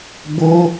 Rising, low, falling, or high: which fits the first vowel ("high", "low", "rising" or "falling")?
high